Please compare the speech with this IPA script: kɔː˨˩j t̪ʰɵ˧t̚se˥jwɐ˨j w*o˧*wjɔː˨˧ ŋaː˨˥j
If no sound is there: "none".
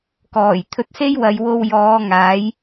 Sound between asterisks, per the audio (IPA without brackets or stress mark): o˧